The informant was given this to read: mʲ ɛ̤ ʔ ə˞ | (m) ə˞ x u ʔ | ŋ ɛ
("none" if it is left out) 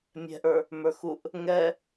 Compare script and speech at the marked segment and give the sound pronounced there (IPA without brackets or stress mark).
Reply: m